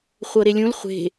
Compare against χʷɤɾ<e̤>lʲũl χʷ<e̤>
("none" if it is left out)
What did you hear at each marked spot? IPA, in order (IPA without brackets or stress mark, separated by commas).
e, e̤